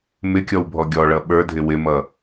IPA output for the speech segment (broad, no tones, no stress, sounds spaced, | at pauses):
m ɪ kʲ ɔ w bʱ ɔ ɡʲ ɔ ɭ ʌ ɓ ə˞ dʱ ɪ w ɪ m ʌ